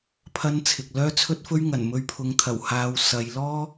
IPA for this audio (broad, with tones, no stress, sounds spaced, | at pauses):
pʰ ɐ˥ n t͡sʰ ɪ˨ k̚ l œː˥ t͡sʰ ɵ˥ t̚ f ɵ˥ ɥ ŋ ɐ˨˩ n m ɵ˧ ɥ pʰ ʊ˨˧ ŋ t̪ʰ ɐ˨˩ w h aː˨ w s ɐ˨˧ j l ɔː˥